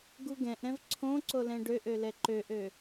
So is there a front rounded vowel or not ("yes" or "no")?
yes